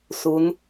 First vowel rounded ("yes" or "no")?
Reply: yes